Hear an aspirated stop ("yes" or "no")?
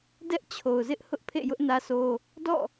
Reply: yes